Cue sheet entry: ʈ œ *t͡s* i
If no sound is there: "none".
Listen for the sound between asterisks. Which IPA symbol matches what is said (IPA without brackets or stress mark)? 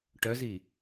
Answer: z